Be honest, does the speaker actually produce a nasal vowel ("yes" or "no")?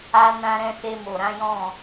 yes